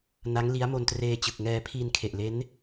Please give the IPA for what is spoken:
n a˦˥ ŋ l i˦˥ a̯ m o˧ n t r eː˧ t͡ɕ ɯ˨˩ k̚ ŋ ɛː˧ pʰ i˧ n kʰ e˨˩ ʔ l e˦˥ n

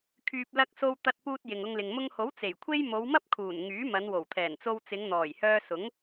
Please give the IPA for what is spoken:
kʰ yː˨ p̚ l ɐ˧ k̚ s o˧ w t̪ ɐ˧ t̚ p uː˧ t̚ j ɪ˨ ŋ ʊ˧ ŋ l ɪ˨ ŋ m ʊ˧ ŋ h o˨˥ w t͡s e˨˩ j kʷʰ e˥ j m o˨˧ w m ɐ˥ p̚ kʰ uː˨˩ n ŋ yː˨˥ m ɐ˨˧ n w o˨˩ w t̪ʰ ɛː˨˩ n t͡s o˧ w t͡s ɪ˨˧ ŋ n̪ ɔː˨˩ j h œː˧ s ʊ˨˥ ŋ

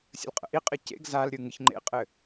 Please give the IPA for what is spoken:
sʲ ə̰ l qʼ ə̰ ʔ i qʼ ɘ c ḛ ɡ z a l ɾʲ ɯ ŋ ɯ ç ŋ͡ǃ ḛ qʼ ɘ

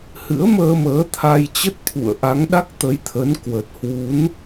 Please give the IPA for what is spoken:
h ɨ̰˧˥ ə̯ m əː˧ m əː˨˦ t̪ʰ a˧ j t͡ɕ ə˦˥ t̚ t̪ʰ ṵ˧˨ ə̯ ʔ a˨˦ ŋ ɗ a˦˥ k̚ t̪ ə˨˦ j t̪ʰ ə˨˦ n k w ə˨˩ t̚ h w u˨˦ n

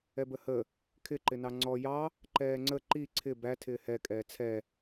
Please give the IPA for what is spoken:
ɛ b ə h ə | kʰ ɪ ǃ ɪ n ɑ ŋ͡ǀ ɔ j ɑ | ǃ ɛː ŋ͡ǀ ə ǃ i ǀʰ ɪ b æ tʰ ɪː h ɛ kʼ ɛː t͡sʰ ɛ

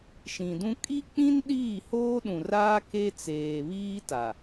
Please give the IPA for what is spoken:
ʃ ĩ˨ d ũ˦ kʼ i˦ k͡p ĩ˦ n ɗ iː˦˨ h oː˦ ɗ ũ˨ r aː˦ k e˦ t͡s eː˨ β iː˦ t a˨

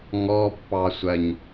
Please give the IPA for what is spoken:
ŋ ɔ pː ɑ sʷ ɜ ɲ

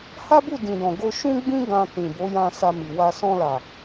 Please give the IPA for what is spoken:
h a˦ b u˦˨ d ĩ˨ d ɔ̃˨ ɡ o˧ ʃ ũ˦ ɡ͡b ĩ˦ ɡ ã˧ t ĩ˨ b o˨˦ j ã˧ s a˧ m i˨ w a˧ s ɔ̃˧ l a˨

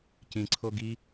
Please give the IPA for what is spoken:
c ĩ ǀʰ o ɡ i

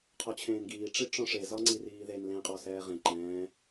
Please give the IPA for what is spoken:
qʰ ɔ t͡ɕʰ ẽː n ɡ iː ʈ͡ʂ i ʈ͡ʂ ɔ̃ ʂ e z ɒ ŋ͡ǀ i r iː ð e n l ẽ qʼ ɔ s ɛː ʁ ẽ ǃ ɛ̃ː

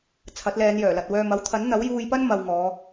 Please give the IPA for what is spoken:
t͡sʰ ɐ˨˥ t̚ l ɛː˨˧ n j œː˨˩ l ɐ˨ t̚ w œː˨ m ɐ˨˥ w t̪ʰ ɐ˨˥ n n̪ ɐ˨˥ w j uː˧ j p ɐ˥ n m ɐ˧ w ŋ ɔː˨˧

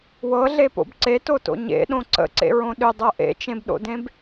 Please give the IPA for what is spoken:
w ɤ ɮ e p o̰ b ǀ e t o t o̰ ɲ ḛ ɗ õ ǀ ə̰ ǀ ḛ ɹ õ ɗ ʏ dˤ ɤ ʔ ḛ t͡ʃ ẽ b ɗ o̰ d ẽ b

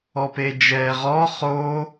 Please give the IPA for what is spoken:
ɔ p e d͡ʒ ɛː ʁ ɔ χ o

